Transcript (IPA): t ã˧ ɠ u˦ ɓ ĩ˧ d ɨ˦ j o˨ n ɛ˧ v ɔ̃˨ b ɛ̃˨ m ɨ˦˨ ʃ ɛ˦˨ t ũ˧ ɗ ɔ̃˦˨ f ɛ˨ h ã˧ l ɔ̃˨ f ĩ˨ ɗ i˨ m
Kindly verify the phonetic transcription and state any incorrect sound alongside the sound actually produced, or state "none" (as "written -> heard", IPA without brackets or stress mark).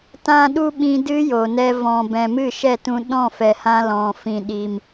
ɠ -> ɗ